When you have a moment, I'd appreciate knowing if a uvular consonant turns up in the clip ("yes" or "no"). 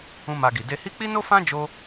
no